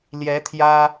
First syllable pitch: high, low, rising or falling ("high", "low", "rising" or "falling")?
rising